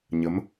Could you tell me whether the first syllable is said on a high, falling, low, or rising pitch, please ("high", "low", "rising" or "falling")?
rising